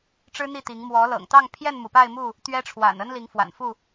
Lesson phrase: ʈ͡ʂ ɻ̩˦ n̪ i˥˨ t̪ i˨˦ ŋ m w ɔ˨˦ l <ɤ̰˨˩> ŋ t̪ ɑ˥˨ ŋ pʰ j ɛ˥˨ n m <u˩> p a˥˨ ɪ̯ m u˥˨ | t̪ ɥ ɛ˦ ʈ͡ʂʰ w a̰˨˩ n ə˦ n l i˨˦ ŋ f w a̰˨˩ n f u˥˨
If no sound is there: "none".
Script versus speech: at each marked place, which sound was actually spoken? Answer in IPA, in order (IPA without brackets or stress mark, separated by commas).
ɤ̰˨˩, u˩